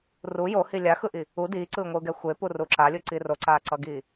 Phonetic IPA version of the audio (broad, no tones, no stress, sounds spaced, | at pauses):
r u j o h i lʲ a x ɯ ʔ i | u d iː ǀ ɯː ŋʷ ɯː ɡ ɛ xʷ e p u r u ǁ a lʲ ɯ ǀ i r o ǀ aː ǀ ʌ ɡ iː